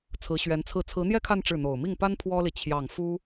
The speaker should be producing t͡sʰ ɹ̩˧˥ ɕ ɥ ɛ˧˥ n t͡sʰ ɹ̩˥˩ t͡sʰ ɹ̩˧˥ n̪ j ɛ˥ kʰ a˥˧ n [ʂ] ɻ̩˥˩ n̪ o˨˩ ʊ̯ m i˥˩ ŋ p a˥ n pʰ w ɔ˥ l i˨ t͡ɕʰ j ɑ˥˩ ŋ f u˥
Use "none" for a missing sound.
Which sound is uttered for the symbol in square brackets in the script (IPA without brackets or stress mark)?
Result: ʈ͡ʂ